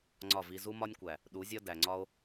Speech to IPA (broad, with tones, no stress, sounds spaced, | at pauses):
ŋ͡ǀ ɒ˦˨ v i˧ z u˦ m ɒ˦ nʲ kʷ æ˨ | ɗ u˨˦ zʲ ɒ˦ d æ˨ ŋ͡ǀ ɒ˦ o̯